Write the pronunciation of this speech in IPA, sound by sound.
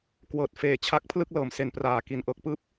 kwɤː˨˩t̚ feː˨˩t͡ɕʰa˦˥k̚ pʰlɯ˥˩k̚lɤː˨˩mse˨˩npraː˨˩ ki˨˩nʔɤː˦˥k̚pɯː˥˩p̚

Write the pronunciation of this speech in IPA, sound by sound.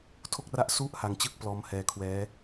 tʰo˥˩k̚ra˥˩ʔ su˦˥ʔ ha˧ŋt͡ɕɯ˥˩k̚ plɔː˦˥mhɛː˧kʰwɛː˦˥

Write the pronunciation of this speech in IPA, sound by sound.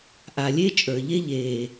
ʔa˨lʲe˦t͡ʃʼə˞˨ʎe˦ ʎeː˨

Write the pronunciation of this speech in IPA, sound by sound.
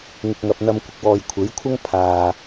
ŋɪ˨k̚ŋɐ˨p̚n̪ɐ˧m kʷɪ˨k̚wɔː˨jkʷʰe˨˥jkʷʰɐ˥ŋ pʰaː˨

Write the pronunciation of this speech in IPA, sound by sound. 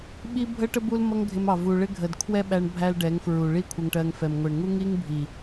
ɓi˦ bʱə˦ʈə˦ bu˦lmʌ˦ŋɡʱɪ˧mɑ˨ vu˨ɭɪ˦ ɡʱə˨dkʰwɛ˦ɓæ˧ɳ bʱæ˦lɖɛ˨˦ŋfɹu˨ ɭi˦ kʷʰə˧ŋʈɜ˧ŋfɛ˨m ŋʷɛ˨ɳŋu˦ŋi˦ŋbʱi˨

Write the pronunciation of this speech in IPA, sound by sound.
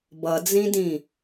bʌd͡zĩdĩ

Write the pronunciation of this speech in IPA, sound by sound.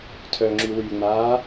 tʰœŋ͡ǁy wyŋ͡maː

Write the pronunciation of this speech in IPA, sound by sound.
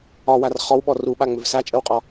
ɒwar χɔwɓɔ ruɓaŋ͡mʏv sat͡ʃʼəwqʼɔ

